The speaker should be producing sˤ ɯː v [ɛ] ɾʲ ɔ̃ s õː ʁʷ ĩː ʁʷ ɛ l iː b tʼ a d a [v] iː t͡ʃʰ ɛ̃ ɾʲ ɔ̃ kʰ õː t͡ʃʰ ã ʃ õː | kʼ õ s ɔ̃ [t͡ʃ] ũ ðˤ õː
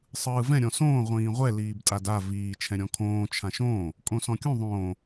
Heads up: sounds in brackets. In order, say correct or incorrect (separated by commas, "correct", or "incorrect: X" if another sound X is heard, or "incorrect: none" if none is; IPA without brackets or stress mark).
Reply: incorrect: ɛ̃, correct, incorrect: kʲ